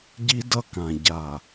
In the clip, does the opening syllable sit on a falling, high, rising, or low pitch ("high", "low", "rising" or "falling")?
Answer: high